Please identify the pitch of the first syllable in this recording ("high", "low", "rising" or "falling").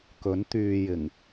rising